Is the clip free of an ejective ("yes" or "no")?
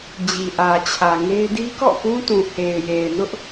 yes